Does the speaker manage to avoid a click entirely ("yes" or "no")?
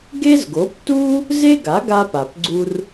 no